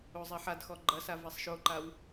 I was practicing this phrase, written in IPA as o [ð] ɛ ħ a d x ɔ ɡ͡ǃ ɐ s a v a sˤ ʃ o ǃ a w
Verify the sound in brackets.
incorrect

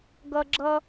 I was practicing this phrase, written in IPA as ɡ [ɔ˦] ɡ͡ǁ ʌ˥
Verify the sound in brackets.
incorrect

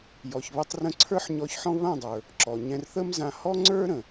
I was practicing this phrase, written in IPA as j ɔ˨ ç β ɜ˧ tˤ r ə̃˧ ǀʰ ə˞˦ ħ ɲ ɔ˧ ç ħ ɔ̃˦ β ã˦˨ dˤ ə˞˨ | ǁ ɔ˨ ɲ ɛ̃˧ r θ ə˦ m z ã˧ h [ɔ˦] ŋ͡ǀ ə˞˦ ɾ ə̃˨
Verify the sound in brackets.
correct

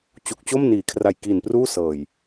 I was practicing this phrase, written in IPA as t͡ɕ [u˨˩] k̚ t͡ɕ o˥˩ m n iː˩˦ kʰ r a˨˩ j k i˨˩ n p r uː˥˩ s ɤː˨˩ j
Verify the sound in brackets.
correct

